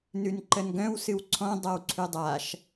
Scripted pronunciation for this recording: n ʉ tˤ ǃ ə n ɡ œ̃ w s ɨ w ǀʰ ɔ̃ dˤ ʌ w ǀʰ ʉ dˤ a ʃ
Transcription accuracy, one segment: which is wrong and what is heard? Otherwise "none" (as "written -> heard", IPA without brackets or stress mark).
tˤ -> n